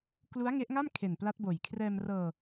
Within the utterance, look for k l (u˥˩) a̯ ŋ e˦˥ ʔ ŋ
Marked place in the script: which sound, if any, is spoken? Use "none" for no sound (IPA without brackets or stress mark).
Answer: u˦˥